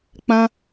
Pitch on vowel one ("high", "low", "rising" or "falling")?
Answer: high